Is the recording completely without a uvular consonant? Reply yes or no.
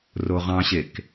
no